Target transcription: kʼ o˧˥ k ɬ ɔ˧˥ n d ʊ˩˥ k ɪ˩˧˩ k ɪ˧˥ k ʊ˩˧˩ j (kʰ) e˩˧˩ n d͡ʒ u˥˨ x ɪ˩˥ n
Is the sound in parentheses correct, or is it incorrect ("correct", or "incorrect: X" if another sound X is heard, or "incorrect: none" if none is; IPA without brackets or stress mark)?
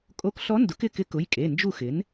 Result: incorrect: kʼ